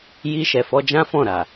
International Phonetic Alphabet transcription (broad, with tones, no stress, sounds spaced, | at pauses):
j i˧ ʃ ɛ˨ f ɔ˧ d͡ʒ ã˦ f ɔ̃˦˨ ɾ a˨